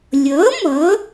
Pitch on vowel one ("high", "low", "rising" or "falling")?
rising